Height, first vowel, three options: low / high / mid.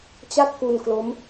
low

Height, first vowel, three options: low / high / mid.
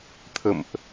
mid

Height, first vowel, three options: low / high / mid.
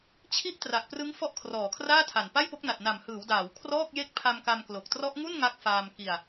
high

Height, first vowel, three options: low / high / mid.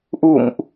high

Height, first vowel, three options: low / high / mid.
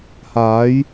low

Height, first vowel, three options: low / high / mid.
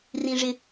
high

